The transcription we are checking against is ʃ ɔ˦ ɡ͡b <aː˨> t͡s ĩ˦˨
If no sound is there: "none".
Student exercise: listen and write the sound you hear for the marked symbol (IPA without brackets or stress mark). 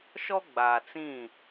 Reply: aː˨